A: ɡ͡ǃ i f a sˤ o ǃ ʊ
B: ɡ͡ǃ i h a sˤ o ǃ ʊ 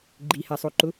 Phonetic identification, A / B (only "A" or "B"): B